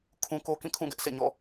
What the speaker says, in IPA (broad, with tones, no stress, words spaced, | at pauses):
kʰũ˦ ko˦kĩ˦˨ kʰũ˦˨ɡɛ˦ʔ sʰḛ˦˨ɲɔ̰˦˨